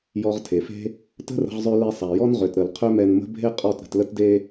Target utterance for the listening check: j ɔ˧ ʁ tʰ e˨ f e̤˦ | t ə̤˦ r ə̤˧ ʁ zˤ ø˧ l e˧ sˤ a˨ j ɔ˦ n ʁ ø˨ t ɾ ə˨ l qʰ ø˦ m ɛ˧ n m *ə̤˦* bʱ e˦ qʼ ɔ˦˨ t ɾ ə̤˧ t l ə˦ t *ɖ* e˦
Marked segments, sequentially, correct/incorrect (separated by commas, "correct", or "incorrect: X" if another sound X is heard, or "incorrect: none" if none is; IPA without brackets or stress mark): correct, incorrect: d